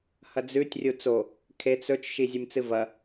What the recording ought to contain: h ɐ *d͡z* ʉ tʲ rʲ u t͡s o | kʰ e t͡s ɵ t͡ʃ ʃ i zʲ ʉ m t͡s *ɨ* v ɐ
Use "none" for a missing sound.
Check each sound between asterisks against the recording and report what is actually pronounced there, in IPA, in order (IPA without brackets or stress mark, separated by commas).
d͡z, ɨ